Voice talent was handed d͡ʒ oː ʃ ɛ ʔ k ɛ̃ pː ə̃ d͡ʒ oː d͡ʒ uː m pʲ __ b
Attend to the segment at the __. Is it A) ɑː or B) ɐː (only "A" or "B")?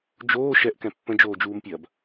B